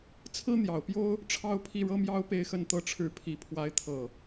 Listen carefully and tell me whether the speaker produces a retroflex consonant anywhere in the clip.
yes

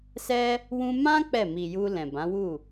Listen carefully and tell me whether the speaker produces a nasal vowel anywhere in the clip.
yes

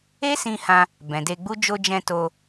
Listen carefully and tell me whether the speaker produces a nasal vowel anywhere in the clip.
yes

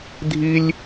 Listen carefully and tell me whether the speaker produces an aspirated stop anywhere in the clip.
no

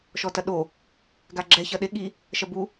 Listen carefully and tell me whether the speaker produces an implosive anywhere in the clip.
yes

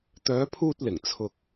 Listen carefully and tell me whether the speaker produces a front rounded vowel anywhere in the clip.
yes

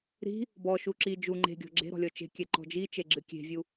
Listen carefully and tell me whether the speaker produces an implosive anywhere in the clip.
no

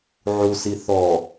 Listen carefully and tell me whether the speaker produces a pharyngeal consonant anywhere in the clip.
yes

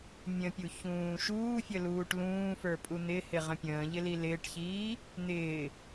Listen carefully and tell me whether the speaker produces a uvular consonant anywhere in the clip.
yes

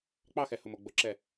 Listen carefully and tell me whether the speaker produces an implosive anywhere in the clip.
no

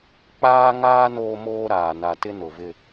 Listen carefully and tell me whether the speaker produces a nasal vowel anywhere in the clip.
no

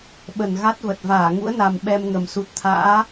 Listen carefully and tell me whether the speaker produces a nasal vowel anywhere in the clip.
no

